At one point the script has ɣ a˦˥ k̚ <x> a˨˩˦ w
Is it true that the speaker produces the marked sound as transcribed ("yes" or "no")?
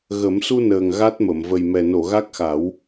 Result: yes